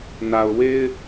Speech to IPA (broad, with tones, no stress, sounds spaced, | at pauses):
n a˨ ʊ̯ w e˦ ɪ̯